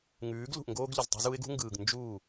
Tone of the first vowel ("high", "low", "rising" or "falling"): rising